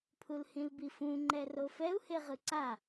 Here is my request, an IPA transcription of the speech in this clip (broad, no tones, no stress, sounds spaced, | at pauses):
pʰ u l h ĩ l b i f ũ ŋ͡ǃ ɛ r o f ɛ u̯ h e ʁ ɯ ǀ a